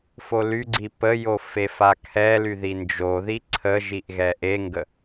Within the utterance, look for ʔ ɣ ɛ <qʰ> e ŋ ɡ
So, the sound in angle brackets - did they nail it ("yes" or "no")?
no